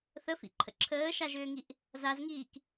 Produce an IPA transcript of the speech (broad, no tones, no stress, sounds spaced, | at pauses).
θ ə f ḭ ǃʰ ə̰ ǁʰ əː ʃ a ʒ ʏː ŋ i ʔ | z a z ŋ iː k